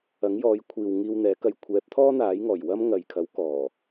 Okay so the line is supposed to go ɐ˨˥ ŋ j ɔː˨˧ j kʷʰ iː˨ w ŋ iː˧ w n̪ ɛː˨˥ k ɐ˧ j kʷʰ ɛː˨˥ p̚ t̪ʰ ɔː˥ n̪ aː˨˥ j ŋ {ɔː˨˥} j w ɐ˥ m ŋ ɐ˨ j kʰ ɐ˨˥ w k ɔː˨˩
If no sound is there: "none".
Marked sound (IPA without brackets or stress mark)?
ɔː˨˩